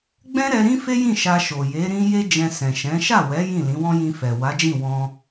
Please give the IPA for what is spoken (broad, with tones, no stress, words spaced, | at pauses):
ɡ͡bɛ̃˦ɾɛ˧ ɾĩ˦fe˦jĩ˦˨ ʃa˧ʃo˨je˨˦ ɾĩ˦ je˦ d͡ʒɛ̃˧sɛ̃˨ʃɛ̃˨˦ ʃa˦˨ wɛ˨˦ jĩ˦˨lĩ˨˦wɔ̃˦ jĩ˧fɛ˨ wa˨˦d͡ʒĩ˦˨ wɔ̃˧